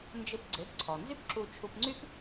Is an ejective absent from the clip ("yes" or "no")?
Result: yes